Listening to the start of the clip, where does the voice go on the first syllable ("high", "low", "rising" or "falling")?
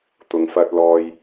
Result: low